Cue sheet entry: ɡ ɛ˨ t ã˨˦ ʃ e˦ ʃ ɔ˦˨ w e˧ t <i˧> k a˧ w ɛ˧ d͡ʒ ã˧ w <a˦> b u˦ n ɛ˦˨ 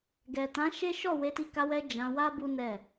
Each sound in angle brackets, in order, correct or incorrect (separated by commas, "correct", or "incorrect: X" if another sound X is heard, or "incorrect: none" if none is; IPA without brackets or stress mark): correct, correct